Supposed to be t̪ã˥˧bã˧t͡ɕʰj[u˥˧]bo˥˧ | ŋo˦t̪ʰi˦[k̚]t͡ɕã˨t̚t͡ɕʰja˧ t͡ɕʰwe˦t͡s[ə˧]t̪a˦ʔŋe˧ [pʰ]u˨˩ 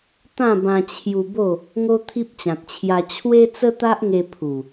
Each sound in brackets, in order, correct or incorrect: incorrect, incorrect, incorrect, correct

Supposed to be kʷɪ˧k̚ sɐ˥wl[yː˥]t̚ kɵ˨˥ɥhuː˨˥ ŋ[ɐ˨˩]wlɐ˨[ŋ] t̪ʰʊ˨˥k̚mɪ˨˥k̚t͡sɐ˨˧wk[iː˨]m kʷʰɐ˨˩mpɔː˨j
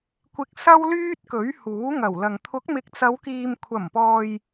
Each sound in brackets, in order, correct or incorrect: correct, correct, correct, correct

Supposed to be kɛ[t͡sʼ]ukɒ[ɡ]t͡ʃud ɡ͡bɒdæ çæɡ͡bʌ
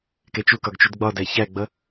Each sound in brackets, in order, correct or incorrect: incorrect, correct

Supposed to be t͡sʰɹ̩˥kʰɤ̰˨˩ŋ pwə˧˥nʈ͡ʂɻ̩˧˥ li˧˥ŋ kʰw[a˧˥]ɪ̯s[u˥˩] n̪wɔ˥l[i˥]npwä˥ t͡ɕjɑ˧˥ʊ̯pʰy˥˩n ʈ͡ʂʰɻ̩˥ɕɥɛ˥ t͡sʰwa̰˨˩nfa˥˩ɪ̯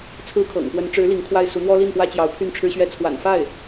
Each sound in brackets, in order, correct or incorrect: incorrect, incorrect, incorrect

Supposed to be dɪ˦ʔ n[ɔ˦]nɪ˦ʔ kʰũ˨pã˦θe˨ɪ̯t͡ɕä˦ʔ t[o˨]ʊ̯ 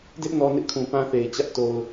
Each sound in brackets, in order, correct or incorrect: correct, correct

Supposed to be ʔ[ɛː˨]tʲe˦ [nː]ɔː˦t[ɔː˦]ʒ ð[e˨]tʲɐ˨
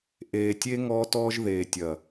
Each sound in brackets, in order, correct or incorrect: incorrect, incorrect, correct, incorrect

